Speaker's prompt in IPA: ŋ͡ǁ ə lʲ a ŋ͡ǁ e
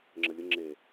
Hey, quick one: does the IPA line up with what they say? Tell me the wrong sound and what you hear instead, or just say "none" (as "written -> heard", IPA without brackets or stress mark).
a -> ə